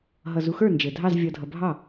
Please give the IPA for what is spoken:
ɦʌ˨ zu˨xə˞˥˩ nd͡ʒɘ˨dʱɑ˥˧z vʲʌ˨dʱʌ˨bʱɑ˥˩

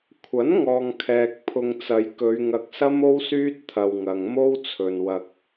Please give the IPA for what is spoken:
kʷʰɐ˨˥nŋɔː˨ŋkʰɛː˨k̚ pʰʊ˧ŋt͡sɐ˨˧jkɵ˨˧ɥ ŋɐ˧k̚sɐ˥mo˥wsyː˥t̚ t̪ʰɐ˧wŋɐ˨ŋ mo˥w t͡sʰɵ˨nwɐ˧k̚

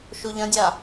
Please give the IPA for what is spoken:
ʃuʎɐ̃dʲa

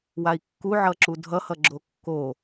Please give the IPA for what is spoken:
wai̯kːuʕʌǁu dʱʌhʌ ɡ͡ǁokːo

